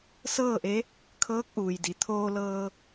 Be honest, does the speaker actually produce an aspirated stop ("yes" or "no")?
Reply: yes